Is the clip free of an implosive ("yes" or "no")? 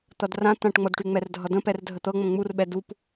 no